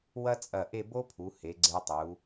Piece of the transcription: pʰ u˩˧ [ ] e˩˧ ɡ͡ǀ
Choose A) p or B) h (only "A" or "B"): B